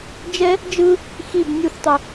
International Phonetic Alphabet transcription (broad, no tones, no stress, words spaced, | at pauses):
d͡ʒɛ | d͡ʒɯ | xib nʲuθtˤu